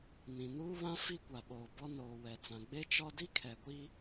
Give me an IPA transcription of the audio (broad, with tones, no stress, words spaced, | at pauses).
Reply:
nĩ˨nuː˦βã˦ fi˦kʷa˨ɓoː˨bɔ˦ noː˨ wɛ˨t͡sã˨ ɡ͡be˦t͡ʃɔ˦ di˦kʰɛ˨ɡʷi˦